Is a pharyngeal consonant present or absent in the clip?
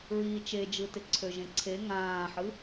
present